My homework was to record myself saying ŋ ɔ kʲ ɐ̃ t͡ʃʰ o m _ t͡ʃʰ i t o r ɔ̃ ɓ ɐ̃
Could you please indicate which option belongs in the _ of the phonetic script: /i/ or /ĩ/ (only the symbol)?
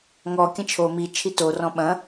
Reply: i